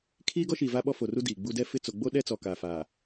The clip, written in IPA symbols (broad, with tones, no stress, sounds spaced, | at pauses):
kʰ iː˦ ɡ ɔ˦ ʃ iː˨ v a˦ ɓ ɔ˦ f o˨ r u˦ d iː˨ ɡ͡b u˦ d ɛ˦˨ f ɪ˦˨ t͡s o˨ ɡ͡b o˦ ɗ ɛ˦ t͡s ɔ˨ k aː˨ f a˨